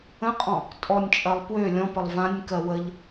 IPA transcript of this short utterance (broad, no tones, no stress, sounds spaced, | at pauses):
ə̃ qʼ ɔ̃ | tʼ ɔ nʲ t͡ʃʼ ɜ lˠ p w ø lʲ ɔ̃ p ə lˠ v ã nʲ k ɜ w ə ʎ